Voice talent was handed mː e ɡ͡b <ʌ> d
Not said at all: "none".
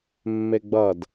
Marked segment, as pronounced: ʌ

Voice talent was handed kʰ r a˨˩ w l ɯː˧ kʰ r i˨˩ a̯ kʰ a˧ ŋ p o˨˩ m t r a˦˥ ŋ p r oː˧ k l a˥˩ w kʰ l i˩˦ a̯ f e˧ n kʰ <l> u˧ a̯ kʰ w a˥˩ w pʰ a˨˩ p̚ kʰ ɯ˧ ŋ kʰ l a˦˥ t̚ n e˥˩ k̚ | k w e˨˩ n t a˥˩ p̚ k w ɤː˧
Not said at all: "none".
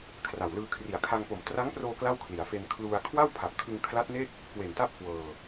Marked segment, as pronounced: l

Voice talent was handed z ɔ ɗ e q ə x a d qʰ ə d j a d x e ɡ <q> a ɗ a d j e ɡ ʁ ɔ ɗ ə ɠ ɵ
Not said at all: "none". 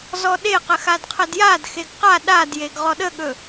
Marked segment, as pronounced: q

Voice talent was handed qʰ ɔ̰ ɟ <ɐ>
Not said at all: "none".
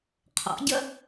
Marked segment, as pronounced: ɐ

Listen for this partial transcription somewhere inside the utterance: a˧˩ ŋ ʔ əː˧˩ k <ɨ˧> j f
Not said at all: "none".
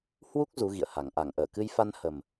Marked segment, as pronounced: ɨ˧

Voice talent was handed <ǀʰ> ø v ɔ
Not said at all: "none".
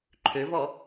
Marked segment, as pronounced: ǃʰ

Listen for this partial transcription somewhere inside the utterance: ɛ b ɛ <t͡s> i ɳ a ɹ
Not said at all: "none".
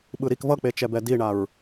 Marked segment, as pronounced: d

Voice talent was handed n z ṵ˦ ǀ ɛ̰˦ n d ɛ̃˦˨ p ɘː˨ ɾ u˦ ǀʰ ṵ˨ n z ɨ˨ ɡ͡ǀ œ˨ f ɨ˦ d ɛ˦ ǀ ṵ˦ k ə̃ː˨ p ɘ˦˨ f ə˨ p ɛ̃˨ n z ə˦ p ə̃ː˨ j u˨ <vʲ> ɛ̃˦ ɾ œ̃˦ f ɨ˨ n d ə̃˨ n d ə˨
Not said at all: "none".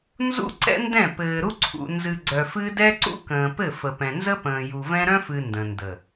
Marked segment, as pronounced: v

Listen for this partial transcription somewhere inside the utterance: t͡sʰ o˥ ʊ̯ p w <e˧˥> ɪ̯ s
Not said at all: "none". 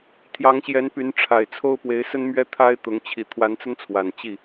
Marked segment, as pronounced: e˧˥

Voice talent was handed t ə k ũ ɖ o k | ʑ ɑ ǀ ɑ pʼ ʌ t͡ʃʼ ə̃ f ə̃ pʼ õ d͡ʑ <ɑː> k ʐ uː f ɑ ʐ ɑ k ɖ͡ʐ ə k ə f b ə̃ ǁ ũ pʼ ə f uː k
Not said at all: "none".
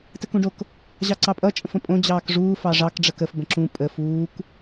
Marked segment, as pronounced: ɑː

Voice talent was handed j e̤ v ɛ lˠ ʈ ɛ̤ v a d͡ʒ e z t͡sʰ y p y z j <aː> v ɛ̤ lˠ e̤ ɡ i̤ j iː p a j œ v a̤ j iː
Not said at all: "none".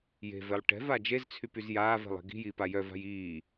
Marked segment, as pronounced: aː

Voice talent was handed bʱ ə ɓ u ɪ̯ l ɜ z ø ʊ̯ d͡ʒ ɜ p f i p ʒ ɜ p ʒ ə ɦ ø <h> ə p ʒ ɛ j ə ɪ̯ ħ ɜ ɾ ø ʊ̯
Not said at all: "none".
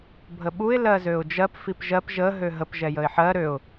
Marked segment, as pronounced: ɦ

